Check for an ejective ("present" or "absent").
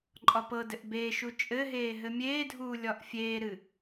present